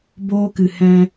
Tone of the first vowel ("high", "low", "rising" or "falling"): high